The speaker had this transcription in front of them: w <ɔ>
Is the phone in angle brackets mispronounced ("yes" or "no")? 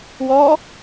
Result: no